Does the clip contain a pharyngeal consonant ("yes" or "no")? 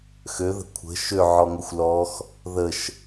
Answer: yes